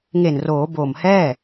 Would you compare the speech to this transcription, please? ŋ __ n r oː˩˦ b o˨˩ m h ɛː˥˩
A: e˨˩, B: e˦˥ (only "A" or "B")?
A